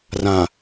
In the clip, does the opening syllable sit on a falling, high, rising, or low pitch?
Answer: low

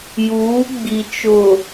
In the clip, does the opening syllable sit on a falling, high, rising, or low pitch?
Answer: rising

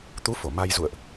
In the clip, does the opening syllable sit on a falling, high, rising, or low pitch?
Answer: rising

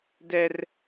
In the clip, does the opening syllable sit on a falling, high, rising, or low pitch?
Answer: high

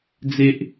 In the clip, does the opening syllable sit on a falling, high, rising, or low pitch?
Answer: high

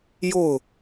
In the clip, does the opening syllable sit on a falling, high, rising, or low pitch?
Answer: falling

